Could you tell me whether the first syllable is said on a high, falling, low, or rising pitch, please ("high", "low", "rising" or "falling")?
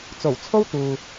low